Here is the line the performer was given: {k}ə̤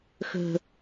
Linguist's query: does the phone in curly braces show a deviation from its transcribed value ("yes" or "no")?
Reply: yes